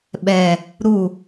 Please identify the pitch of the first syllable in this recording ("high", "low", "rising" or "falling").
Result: low